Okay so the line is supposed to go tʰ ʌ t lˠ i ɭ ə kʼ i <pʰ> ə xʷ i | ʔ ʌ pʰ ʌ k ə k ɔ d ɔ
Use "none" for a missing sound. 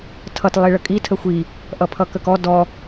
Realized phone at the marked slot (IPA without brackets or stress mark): tʰ